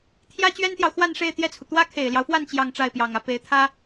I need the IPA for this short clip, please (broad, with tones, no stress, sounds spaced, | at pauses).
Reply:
t̪ʰ j ä˥ t͡ɕ ɥ ɛ˥ n t̪ j ɑ˨ ʊ̯ x w a˥˧ n ʂ e˥˧ ɪ̯ t̪ j ɛ˥˩ t͡sʰ u˩ t̪ w ä˥ kʰ e˨˩ ɪ̯ l j ɑ˦ ʊ̯ f w a˥˧ n t͡ɕ j ɑ˥˧ ŋ ʈ͡ʂ a˥˩ ɪ̯ p j ɑ˨˩ ŋ ä˥˩ p e˧˥ ɪ̯ t̪ʰ ä˥